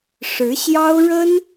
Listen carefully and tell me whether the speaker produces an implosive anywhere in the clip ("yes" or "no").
no